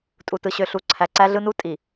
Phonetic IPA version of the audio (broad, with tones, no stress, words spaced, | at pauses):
tʼu˨tɯ˨ɕø˨ ɬu˨ ǀʰæ˨ǀæ˦ɮɯ˦nu˦ tʼi˨